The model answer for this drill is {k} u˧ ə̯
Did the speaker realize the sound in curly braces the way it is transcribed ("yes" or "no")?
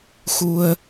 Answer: no